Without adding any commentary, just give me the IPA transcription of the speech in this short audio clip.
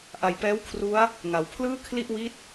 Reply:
ʔ a˨˩ j p ɛː˦˥ w kʰ r u˦˥ a̯ | ŋ a˩˦ w pʰ l ɯː˥˩ kʰ l i˥˩ ʔ w i˦˥ t̚

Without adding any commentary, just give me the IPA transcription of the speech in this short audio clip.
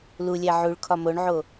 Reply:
l u lʲ æ ʕ u ɭ kʰ ɒ m o ɳ ʕ o

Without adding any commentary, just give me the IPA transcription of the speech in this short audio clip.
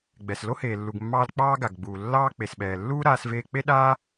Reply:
ɡ͡b ɛ˩ s l o˥ h eː˩ lː u˩ ɡ mː ɑː˧ l k͡p ɑː˥ ɡ a˩ ɡ ɡ͡b uː˩ lː ɑː˥ k͡p e˩ s ɓ ɛː˩ lː uː˥ ɾ aː˧ s v eː˧ k͡p e˥ ɗ aː˥

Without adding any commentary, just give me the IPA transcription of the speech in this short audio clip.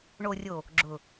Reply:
ɳ o˨ rʲ o˨ | ɡ͡ǁ ʊ˨

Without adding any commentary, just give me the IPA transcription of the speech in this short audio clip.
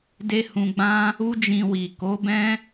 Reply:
d e˦ h ũ˧ ɡ͡b ã˦ | u˦ d͡ʒ ĩ˧ w i˨ k o˨˦ b ɛ̃˦

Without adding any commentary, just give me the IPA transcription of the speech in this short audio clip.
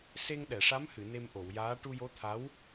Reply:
s e˧ ŋ ɗ ɛ˨˩˨ ʂ a˧˥ m h ɨ˨˩˨ n e˧ m ʔ o˨˩˨ w j aː˧˥ ʈ u˧ j o˧˥ t̪ʰ a˧˥ w

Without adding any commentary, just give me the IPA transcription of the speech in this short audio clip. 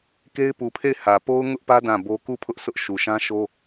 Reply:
k e˦ ɪ̯ p u˨ pʰ e˦˨ ɪ̯ h ä˨ p o˦ ʊ̯ ŋ ʊ˦ ʔ p ä˦ d ã˦˨ b o˦ k u˦˨ pʰ ʊ˦ ʔ s ʊ˦ ʔ ʃ u˨ ʃ ã˦ ʃ o˦

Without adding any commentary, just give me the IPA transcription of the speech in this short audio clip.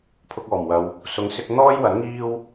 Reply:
pʰ ʊ˧ k̚ ɔː˨˩ m w ɐ˨ w | s ʊ˨˥ ŋ s ɪ˧ k̚ n̪ ɔː˥ j w ɐ˨˥ n ŋ iː˥ w

